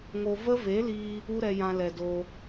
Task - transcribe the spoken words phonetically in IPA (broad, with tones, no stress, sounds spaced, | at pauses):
ŋ o˧ v ə˦ v e˨˦ l iː˧ | u˦ ɾ ɛ˧ j ã˧ l ɛ˨ d oː˧